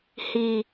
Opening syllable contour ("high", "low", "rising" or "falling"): low